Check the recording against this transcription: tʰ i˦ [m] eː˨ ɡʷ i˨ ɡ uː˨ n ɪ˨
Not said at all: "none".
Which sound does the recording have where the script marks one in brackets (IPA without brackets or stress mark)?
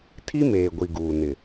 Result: m